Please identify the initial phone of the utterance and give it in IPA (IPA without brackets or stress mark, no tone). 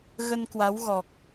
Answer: ɣ